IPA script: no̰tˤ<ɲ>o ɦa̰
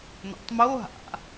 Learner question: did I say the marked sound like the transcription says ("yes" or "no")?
no